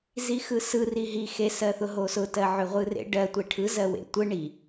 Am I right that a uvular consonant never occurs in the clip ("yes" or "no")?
no